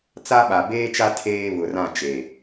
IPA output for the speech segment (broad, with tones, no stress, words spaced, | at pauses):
t͡sa˦ɓa˨ beː˦t͡ʃa˦ tʰeː˦ βʊ˨rã˦˨ t͡ʃe˨